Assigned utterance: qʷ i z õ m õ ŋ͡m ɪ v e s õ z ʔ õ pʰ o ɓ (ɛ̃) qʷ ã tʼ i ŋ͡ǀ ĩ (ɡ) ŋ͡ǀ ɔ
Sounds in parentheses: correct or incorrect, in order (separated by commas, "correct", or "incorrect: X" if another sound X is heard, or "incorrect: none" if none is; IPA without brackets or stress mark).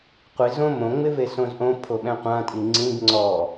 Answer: correct, correct